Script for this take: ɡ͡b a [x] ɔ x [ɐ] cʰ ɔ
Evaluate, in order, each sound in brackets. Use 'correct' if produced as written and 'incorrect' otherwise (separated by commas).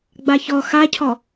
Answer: incorrect, incorrect